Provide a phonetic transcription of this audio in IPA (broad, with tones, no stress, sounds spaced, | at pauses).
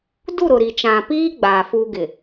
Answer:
d u˦˨ ɾ ʊ˨ ɾ i˨ t͡ʃ ã˨ p iː˦ ɡ͡b aː˨ f uː˦ ɡ ɪ˨